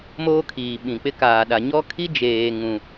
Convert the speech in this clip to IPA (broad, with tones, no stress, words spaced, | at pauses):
moː˦kʰiː˨ɓĩ˨k͡pɪ˦ kaː˨ɗa˨ ɲɔ˦kʰi˦ d͡ʒeː˨ŋũ˨